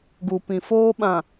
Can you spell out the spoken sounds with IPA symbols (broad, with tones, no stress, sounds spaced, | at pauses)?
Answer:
ɡ u˨ p ĩ˨ f oː˦ ɓ ã˨